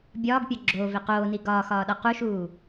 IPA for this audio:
bʲɒːɡpʲɒ ɡ͡ǁoːve qoːni ɡɒːxɒːɗɒ quʃuː

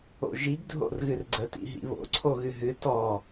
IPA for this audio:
o̰ʒiɡ dʱo̰rɣɨrɡ͡ǀə tḭɦḭβo̰ ǀʰoɣɨɦɨ tɔ

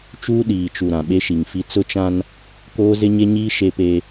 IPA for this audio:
t͡ʃuː˦ɗiː˨t͡ʃu˨ ɾã˨ɓe˦ʃi˨ŋfi˦ t͡sʊ˦t͡ʃã˦n | koː˦zɪ˦ɲe˦ɲiː˦ ʃe˦pe˦

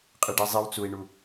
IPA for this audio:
qʼɨɖizˤiw t͡sui̯ɳu

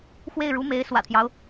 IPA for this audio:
xwe˥˩ɪ̯ɻu˧˥me˧˥ɪ̯ swä̰˨˩t̪ʰjɑ˦ʊ̯

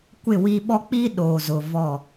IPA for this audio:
kʷɪ˦˨wi˦ ɓɔ˦ k͡pi˦ ɗoː˨zʊ˨ vɔ˦˨

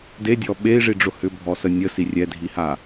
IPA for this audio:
dedʲɔ ɓei̯ʐiɖ͡ʐʊ hʏbʱɔ sənʲə sirʲɛdʱiha

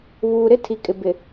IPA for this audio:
βuː˨ɾɪ˦tʰi˨ kʼɪ˨bɪ˨

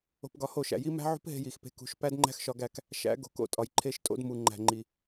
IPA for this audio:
o̤˧pɡɒ˧ho˦˨ʃæ̰˨ ji˦ mæ̤˦ʕṳ˦pɦe̤˧ ji˨xpe̤˧ kṳ˨˦ʃ pæ˦d ŋ͡ǃæ̤˦xʃɒ˧ɡæ˦˨k | ʃæ̰˨˦ɡo̤˨˦k o̰˧tʼɒ˨j ǃʰe˧ʃtʼo̰˧dmu˨ ŋ͡ǃæ̤˨ŋ͡ǃi˨

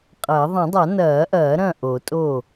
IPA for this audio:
qʼɐ˨˩˦ ðˤɐ̃˨˩˦dˤa˨˩˦nɐː˨˩˦ʔɐː˨˩˦ ɾɐ̃˥˩ʔo˨˩˦tʼo˥˩

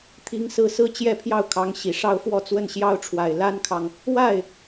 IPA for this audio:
t̪ʰi˥ŋsɹ̩˥˧ sɹ̩˥˧ t͡ɕjɛ˥˧pʰjɑ˥˩ʊ̯kʰɑ˧˥ŋ ɕi˨˩ʂɑ˥ʊ̯ fwɔ˥˧t͡swə˥˩nɕjɑ˥ʊ̯ʈ͡ʂʰwa˨˩ɪ̯ la˥nkʰɑ˨ŋ | wa˥˩ɪ̯

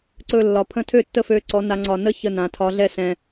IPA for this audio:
ǀɵ˧˩ lːɒ˩pʰə̃˧˩ tʰø˥˩tːə˥˩fø˧˩ǀɔ˩˧ na˩˧ŋ͡ǀɒ˩nə˥˩ çə˧˩nã˩ tʰɒ˩˧ ɮɛ˧˩sɛ̃˩

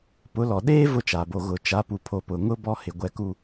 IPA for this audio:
pʊ˨˦lɔ˨ ɗeː˦ vʊ˦t͡ʃa˨bo˨ ɣʊ˨t͡ʃa˨˦ pu˨pʰo˨pʊ˨ŋʊ˦ bɔ˦hɪ˨ ɡʷɛ˨ku˨

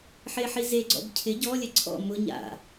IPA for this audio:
ħeħizeɡ͡ǀɔ̰b cʰɪ ɟɔlʲɛ ǀʰɔ̰ mʊ ɲa̰

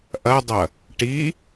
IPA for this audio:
ʔɐdˤɐ | ʈi

